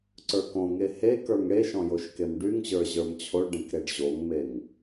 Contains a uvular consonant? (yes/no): no